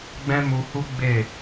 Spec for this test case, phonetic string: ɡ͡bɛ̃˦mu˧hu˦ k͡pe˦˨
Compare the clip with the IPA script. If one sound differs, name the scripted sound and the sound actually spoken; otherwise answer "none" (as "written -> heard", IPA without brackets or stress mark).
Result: k͡p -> ɡ͡b